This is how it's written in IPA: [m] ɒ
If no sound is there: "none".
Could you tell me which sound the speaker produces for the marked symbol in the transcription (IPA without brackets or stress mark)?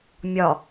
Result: mʲ